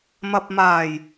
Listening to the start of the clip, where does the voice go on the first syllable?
low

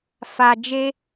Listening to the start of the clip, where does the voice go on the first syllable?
low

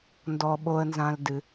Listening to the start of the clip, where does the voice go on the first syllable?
low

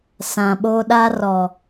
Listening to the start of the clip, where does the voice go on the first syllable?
low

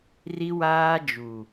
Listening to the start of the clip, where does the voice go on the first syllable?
high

